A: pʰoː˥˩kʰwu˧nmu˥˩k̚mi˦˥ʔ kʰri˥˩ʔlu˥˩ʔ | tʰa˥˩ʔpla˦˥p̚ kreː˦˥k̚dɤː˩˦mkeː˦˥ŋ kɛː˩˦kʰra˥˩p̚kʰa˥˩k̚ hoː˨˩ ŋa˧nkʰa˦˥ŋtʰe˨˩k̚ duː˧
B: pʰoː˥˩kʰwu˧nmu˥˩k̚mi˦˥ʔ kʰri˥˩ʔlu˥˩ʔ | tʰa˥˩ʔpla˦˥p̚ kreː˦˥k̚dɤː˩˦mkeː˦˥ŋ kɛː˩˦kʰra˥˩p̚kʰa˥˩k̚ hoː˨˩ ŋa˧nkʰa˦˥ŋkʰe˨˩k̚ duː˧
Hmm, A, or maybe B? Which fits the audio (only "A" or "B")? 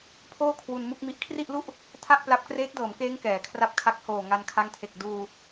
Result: A